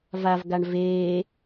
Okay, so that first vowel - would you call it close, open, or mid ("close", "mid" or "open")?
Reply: open